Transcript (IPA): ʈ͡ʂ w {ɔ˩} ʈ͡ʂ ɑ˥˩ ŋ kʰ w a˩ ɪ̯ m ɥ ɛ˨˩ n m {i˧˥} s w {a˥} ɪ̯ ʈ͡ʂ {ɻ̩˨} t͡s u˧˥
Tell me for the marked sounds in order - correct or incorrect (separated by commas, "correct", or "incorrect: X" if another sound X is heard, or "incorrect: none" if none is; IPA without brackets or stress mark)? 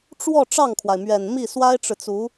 incorrect: ɔ˥˧, incorrect: i˥˩, correct, correct